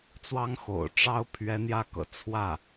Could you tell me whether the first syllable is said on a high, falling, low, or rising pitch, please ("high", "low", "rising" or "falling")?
high